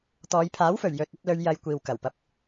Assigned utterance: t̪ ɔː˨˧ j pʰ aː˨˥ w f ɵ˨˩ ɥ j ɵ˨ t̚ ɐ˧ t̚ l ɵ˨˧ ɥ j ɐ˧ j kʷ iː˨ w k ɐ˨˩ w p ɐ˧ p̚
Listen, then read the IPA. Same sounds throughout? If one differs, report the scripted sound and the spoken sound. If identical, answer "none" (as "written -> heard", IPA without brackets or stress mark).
none